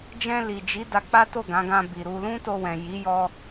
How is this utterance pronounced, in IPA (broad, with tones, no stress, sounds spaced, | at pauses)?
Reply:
d͡ʒ ɛ̃˧ l i˨ d͡ʒ i˨˦ d a˧ k͡p a˦ t o˦˨ ɡ ã˨˦ ɡ ã˧ b i˨ ɾ u˧ l ũ˦ t o˧ w ɛ̃˨ j i˨˦ j ɔ˧